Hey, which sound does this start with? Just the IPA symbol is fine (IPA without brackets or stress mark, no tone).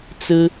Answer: t͡s